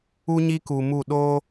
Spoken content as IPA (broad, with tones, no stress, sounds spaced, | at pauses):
u˦ ɲ i˦ k u˧ m u˦˨ ɗ o˦